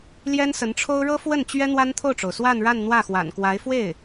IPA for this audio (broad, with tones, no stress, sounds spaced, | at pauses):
l j ɛ˥ n s ə˧˥ n ʈ͡ʂʰ o˥ ʊ̯ ɻ ɤ˥ f w ə˥˩ n t͡ɕ ɥ ɛ˥ n̪ w a˥ n t̪ʰ o˥˩ ʊ̯ ʈ͡ʂ o˩ ʊ̯ s w a˥˧ n ɻ a˥˧ n n̪ w ä˥˩ x w a̰˨˩ n k w a˧˥ ɪ̯ f w e˥˩ ɪ̯